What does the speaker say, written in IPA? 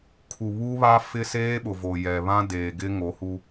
kʰu˨βu˦βa˦fɪ˦ seː˦ɓʊ˨vo˨ jɛ˨ βã˦deː˨ɡɪ˦ ŋo˨˦hu˦

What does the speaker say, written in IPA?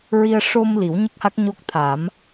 ɹi˧ə̯ ʂo˧m li˨˩˦wɲə˦˥k̚ha˦˥k̚ ɲo˦˥k̚t̪ʰa˨˩˦m

